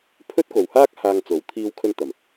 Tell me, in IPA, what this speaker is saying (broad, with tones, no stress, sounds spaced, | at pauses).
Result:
pʰ ɵ˥ t̚ k o˨ w h aː˥ k̚ h aː˧ ŋ t͡s o˨˥ w t̪ʰ iː˧ w kʰ ɵ˧ n t̪ ɐ˨˩ m